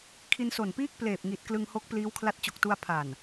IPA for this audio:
kʰ i˧ n s o˨˩ n p iː˥˩ k̚ p l eː˨˩ p̚ ŋ i˨˩ t̚ k l ɯ˧ ŋ h o˦˥ k̚ p l iː˦˥ w kʰ l a˦˥ t̚ t͡ɕ o˨˩ k̚ t u˧ a̯ pʰ a˨˩ n

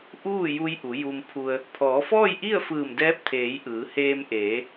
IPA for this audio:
ʔ uː˥˨ j u˧ j ʔ u˩˧ j u˧ m pʰ u˧ ə̯ | pʰ ɔː˩˧ f ɔː˥˨ j ʔ i˥˨ ə̯ f ɯː˧˩ m d ɛː˧˥ p̚ t̪ʰ eː˩˧ j ʔ ɯː˩˧ h eː˧ m ʔ eː˩˧

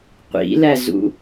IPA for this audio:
qʷ ḭ l æ z ṵ

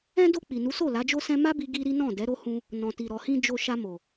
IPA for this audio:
ɛ̃˧ d o˧ k͡p i˨ n u˨˦ s o˦˨ l a˨˦ d͡ʒ o˦ s ɛ̃˧ m a˦ b i˧ ɡ i˦ ɾ i˦ n ɔ̃˦˨ d ɛ˨˦ ɾ o˦ h ũ˧ | n ɔ̃˨ t i˨ ɾ ɔ˨ h ĩ˧ d͡ʒ o˨ ʃ a˧ m o˨

